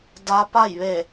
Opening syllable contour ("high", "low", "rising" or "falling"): rising